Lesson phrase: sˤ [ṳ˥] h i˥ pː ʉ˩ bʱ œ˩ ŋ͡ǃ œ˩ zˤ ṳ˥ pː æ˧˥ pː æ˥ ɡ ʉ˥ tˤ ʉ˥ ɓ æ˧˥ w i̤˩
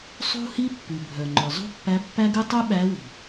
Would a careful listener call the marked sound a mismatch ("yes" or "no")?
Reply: no